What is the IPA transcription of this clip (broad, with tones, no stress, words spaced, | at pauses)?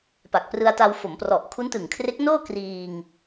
pa˨˩k̚prɯ˧a̯ta˧w fo˩˦mprɔ˨˩ʔ kʰu˦˥ntɯ˨˩ŋkʰre˦˥k̚ noː˥˩ kriː˧ŋ